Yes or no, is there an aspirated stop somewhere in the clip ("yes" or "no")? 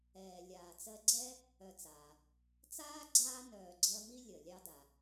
no